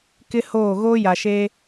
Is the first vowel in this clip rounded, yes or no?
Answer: no